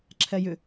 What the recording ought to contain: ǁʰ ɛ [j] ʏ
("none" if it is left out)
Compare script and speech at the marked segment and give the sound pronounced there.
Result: j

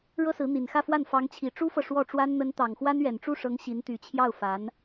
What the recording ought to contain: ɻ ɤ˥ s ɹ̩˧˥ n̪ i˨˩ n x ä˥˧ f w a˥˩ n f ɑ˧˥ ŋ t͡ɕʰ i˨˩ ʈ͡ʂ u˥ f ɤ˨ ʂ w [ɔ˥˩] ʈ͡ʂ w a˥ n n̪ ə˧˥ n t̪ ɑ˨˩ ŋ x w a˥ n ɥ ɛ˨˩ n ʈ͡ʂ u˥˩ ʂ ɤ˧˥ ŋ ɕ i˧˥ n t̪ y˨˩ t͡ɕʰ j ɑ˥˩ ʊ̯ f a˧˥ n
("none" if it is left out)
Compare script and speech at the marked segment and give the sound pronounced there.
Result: ɔ˥˩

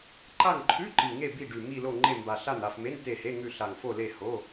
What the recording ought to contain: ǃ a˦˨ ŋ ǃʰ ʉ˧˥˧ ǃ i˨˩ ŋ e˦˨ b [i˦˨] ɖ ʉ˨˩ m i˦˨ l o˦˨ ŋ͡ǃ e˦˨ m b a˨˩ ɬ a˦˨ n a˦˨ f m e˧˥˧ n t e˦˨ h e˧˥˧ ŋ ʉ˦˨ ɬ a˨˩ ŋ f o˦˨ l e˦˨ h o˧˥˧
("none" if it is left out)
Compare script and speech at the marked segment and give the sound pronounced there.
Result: i˦˨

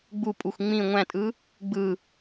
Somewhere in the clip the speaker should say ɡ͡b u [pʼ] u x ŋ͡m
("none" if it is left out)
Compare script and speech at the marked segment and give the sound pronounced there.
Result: pʼ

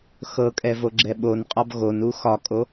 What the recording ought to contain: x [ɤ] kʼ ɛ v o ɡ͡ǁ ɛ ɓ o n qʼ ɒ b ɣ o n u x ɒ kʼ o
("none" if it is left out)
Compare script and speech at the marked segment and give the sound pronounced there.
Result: ɤ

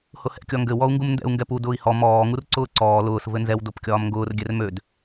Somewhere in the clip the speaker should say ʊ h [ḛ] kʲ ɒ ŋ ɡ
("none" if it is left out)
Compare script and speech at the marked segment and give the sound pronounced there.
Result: ɛ̰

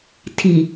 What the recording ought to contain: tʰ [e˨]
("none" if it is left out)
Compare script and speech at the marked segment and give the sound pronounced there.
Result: i˨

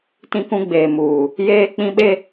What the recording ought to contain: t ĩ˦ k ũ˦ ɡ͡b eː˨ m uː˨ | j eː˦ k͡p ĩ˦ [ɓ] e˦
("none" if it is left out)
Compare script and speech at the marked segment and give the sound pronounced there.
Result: ɓ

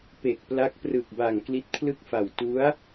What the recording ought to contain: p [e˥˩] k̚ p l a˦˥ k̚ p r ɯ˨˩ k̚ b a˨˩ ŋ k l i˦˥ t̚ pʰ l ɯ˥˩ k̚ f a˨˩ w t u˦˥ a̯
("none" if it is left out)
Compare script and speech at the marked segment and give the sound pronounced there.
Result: e˨˩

